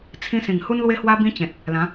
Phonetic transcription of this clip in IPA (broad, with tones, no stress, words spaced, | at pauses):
t͡sʰĩ˦ sĩ˨˩ŋhu˦nlwe˦hwa˦ bĩ˦t͡ɕẽ˨t̚ | lã˨˦